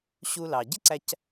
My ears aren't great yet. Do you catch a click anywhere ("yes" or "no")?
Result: yes